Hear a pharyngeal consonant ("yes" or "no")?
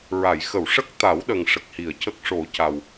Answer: no